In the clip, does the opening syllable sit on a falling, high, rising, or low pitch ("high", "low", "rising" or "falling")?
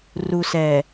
low